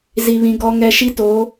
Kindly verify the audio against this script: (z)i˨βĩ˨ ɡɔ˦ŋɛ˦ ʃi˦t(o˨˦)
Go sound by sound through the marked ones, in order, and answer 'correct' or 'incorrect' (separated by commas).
correct, correct